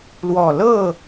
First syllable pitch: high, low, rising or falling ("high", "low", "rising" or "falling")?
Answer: low